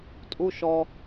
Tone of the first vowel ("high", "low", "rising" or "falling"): low